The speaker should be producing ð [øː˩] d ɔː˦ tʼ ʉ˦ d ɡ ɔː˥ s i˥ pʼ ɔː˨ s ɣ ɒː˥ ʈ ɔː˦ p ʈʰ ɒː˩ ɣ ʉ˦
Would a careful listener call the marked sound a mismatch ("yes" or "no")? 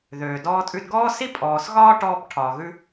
no